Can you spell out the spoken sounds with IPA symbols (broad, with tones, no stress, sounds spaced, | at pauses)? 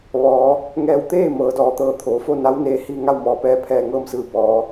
ʋ ɔː˩˧ | ŋ ɛː˧˩ w t̪ eː˥˨ m ɤː˩˧ d ɔː˩ t̪ ɤː˧˩ t̪ʰ oː˩˧ f o˥˨ n a˧˥ w n eː˧ h i˥˨ ŋ a˥˨ w m ɔː˩ p ɛː˧ pʰ ɛː˧˩ ŋ ɤː˥˨ m s ɯː˧˩ b ɔː˩˧